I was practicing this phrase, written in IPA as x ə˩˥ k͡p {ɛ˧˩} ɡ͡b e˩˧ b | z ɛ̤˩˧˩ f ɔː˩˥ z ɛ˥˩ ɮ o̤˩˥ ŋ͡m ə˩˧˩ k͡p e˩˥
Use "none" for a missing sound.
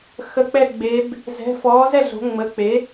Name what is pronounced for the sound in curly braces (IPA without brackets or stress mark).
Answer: ɛ˧˩